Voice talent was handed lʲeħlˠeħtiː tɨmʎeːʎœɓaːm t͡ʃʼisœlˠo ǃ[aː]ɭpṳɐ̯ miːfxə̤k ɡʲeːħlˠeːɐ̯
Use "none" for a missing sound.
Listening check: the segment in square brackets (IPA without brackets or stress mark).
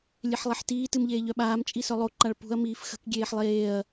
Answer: a